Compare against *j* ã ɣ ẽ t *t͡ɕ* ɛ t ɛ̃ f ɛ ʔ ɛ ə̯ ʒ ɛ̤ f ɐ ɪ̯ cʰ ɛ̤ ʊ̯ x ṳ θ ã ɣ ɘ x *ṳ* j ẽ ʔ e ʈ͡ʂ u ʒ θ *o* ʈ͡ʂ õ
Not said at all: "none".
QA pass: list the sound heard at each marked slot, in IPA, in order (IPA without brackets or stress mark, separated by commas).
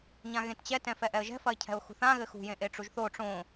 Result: ɲ, t͡ɕ, ṳ, o